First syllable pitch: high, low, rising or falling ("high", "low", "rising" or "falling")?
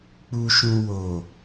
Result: low